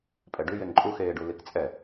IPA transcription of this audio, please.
pʼɛɖʉ jeŋǃʼuxeːɖu likt͡sʼɛ

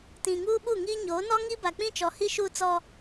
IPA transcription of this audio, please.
tĩ˨ ŋuː˦ɓu˦˨ŋiː˦ ɲo˨˦nɔ˦ ŋi˦ba˨k͡pĩ˦t͡ʃɔ˨ hi˦ʃuː˦t͡sɔ˦

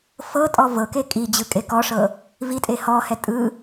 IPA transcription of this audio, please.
fɤtʼɔ vɤke kʼi d͡ʑɯkʼekɔʂɤ | vitʼe hɔhɛ tʼɯ

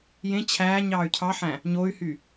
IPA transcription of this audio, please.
jẽ t͡ɕʰæːɲ ɑːy̯cʰɑħæ̃ | ɲoy̯hy

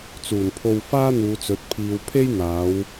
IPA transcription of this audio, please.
t͡suː˨˩npʰo˧w faː˥n̪uː˨˧t͡sɵ˨˥t̚ pʰiː˨wpʰe˥j n̪aː˨˥w

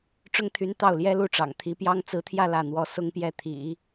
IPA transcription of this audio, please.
ʈ͡ʂʊ˥ŋt̪ʰy˧˥n t̪ɑ˥˩ʊ̯ljɛ˥lu˥˩ʈ͡ʂɑ̰˨˩ŋ t̪ʰi˧˥pjɑ˥ŋ t͡sɹ̩˧˥t̪ʰjä˥˧ lä˥˩n̪wɔ˥ sʊ˥ŋpjɛ˥˩ t̪ʰḭ˨˩˦

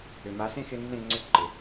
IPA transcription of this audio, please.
ʏ˨ma˨˦sẽ˦xɪ˧ nːẽ˦˨ŋ͡ǀʏ˦˨ǃɪ˨

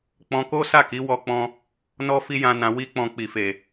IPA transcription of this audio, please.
k͡pɔ̃˧ko˦sa˦˨ki˨˦ wɔ˧k͡pɔ̃˧ | nɔ˦ fi˦jã˧nã˧ wi˦k͡pɔ̃˧k͡pi˨fe˨

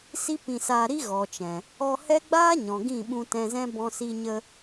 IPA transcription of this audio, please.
si˦pĩ˧saː˧ɾi˦ ɣɔ˨t͡ʃɛ̃˨ | ɔ˧hɛ˦ ɡ͡baː˦ɲɔ̃˨ ɡĩ˦˨ɓũ˧tɛ̃˧zɛ̃˦ bɔ̃˧si˧ ɲə˧

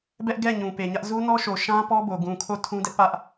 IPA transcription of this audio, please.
bɛ˦ʔɡɛ˦˨ ɲũ˨pe˨ɲä˦ʔ zu˦nɔ˦ʃo˨ʃã˦ pɔ˦bo˨ ɡũ˨kʰo˦˨ tʰũ˦dɛ˦ʔpä˦ʔ

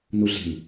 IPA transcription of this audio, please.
nuɮe̤n

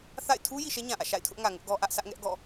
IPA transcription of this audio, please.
θa̰˦˨ɪ̯ tʰu˦ ji˨ʃɛ˦ɲã˨ʔä̰˦˨ ʃa̰˦˨ɪ̯tʰʊ˦ʔŋä˨ŋʊ˦ʔ ɡɔ˦ʔä˦ʔ sʰä˦ʔŋɛ˦ʔɡɔ̰˦˨

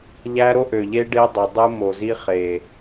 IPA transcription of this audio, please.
ʎæ˦ɾo˦ʔø˨ʎe˦ ɖe˦ dˤø˨dˤɯ˦ mo˨zi˦ χe˨

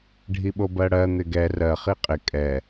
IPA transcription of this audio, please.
ɖʱiɓobɜɽɜ n̪ɪɡɛ rɜ χiqʼɪ kʼɛ

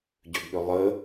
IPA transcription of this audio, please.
ɟʏɡɠʏ lˠə

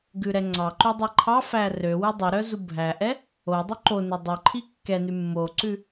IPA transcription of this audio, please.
ɡʉɾɛŋ͡ǀɑǃu dˤɛǃʰɑfæ rø wʉdˤɵɾœ zubʱæʔɛ | o dˤʉǃonɵ dˤœǃʰi kːɛnʉ mːoǀʉ

